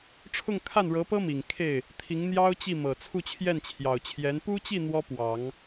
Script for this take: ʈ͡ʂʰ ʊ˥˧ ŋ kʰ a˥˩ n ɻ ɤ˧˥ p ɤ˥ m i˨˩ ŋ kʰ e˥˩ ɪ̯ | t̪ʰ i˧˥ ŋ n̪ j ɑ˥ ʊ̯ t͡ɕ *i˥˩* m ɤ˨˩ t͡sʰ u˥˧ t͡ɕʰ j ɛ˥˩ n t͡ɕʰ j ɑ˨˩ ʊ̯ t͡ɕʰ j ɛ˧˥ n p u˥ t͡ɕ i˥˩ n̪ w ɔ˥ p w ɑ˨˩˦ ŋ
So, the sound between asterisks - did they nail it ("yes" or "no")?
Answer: yes